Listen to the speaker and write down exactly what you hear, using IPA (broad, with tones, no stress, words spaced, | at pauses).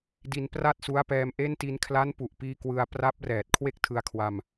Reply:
di˧npra˥˩t̚su˦˥a̯pɛː˧m ʔe˥˩n ti˧nkʰla˦˥npu˨˩ʔpiː˧ kwɯ˧a̯ pra˦˥p̚rɛː˨˩t̚ kʰwe˥˩k̚tʰɯ˧a̯kʰwa˧m